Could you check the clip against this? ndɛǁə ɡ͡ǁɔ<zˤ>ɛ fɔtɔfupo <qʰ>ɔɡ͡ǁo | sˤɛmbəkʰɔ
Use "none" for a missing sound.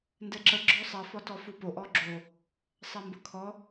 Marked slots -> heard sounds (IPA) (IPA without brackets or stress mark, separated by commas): sˤ, ʔ